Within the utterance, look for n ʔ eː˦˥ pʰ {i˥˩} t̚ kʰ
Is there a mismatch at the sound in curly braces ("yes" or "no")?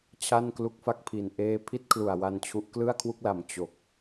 no